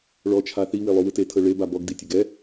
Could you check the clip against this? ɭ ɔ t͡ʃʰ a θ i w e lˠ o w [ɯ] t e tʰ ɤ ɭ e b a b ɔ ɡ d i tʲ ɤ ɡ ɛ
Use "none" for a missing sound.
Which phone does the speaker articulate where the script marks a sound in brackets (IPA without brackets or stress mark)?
ɯ